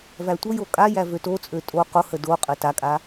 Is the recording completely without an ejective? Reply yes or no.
no